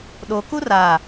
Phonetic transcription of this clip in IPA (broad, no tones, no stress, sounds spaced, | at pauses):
ɗ o k u r a